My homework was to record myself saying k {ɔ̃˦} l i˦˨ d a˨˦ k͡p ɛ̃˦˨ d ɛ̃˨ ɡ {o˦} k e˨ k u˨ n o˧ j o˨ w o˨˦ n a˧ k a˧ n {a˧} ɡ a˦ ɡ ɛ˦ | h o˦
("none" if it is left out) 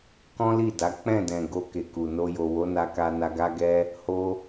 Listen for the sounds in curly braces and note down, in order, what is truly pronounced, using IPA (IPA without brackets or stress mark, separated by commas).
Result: ɔ̃˦, o˧, a˧